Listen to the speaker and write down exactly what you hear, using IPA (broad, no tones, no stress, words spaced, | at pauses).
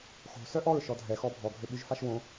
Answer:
xo̤ sœʔɔɹ ʃɔdʱɛ xɔbʱɔ ɡʱøɓyʒfaʃwõ